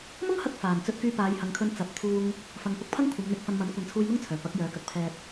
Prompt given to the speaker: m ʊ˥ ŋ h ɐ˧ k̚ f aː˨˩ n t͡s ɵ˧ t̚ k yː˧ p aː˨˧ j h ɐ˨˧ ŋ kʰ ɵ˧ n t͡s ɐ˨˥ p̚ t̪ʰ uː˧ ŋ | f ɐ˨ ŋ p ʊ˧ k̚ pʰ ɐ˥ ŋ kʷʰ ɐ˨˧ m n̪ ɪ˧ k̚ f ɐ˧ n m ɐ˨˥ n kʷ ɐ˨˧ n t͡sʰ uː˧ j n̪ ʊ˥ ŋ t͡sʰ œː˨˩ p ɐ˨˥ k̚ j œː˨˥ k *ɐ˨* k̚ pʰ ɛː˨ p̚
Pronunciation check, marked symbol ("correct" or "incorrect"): correct